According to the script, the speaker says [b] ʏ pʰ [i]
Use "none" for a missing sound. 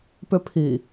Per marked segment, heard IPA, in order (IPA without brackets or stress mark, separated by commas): p, i